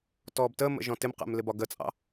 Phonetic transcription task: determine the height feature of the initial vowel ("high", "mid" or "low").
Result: mid